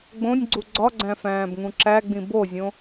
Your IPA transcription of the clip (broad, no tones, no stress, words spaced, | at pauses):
ɡ͡bõnʲɡ͡ǀu ɡ͡ǀɒɡ͡ǀæ̃fæ̃ːbŋũ ǁæɡ͡bĩ bozʲõ